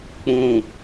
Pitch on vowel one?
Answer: low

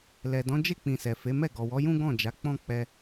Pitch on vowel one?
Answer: low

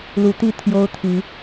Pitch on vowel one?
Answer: rising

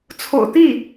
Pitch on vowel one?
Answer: low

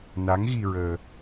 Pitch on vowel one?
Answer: rising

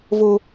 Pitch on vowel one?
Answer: high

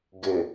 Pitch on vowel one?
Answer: low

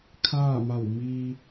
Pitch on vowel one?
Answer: falling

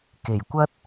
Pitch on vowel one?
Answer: low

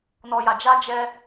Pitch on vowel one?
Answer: low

